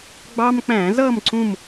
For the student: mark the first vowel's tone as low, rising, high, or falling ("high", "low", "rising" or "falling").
high